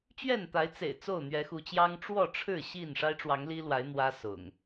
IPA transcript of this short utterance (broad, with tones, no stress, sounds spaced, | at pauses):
t͡ɕ ɥ ɛ˥˨ n t̪ a˨˦ ɪ̯ t͡s ḛ˨˩ ɪ̯ t͡s o˥˨ ʊ̯ n̪ ɥ ɛ˨˦ x u˨˦ t͡ɕ j ɑ˦ ŋ ʈ͡ʂ w ɔ˥˨ ʈ͡ʂʰ ɻ̩˥˨ ɕ i˥˨ n ʂ a˦ ɪ̯ ʈ͡ʂ w ɑ˨˦ ŋ l i˦ l w a˨˦ ɪ̯ n̪ w ä˦ s ʊ̰˨˩ ŋ